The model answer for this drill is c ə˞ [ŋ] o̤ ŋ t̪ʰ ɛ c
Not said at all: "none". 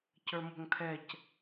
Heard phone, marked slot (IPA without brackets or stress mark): m